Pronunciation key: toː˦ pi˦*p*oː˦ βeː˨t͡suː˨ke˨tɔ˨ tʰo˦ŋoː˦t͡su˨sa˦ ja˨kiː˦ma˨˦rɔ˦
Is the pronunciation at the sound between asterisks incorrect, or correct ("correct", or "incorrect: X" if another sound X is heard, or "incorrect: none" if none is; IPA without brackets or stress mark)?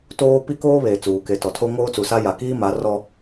incorrect: k